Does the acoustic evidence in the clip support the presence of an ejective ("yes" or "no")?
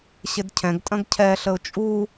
yes